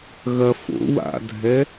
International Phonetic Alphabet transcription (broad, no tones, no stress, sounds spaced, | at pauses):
ɣ ɐ f o̰ w a̰ dʱ ɛ